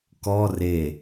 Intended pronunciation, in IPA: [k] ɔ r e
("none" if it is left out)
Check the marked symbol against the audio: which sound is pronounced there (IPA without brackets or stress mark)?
k